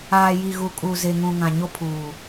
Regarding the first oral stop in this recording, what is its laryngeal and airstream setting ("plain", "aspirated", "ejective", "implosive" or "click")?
ejective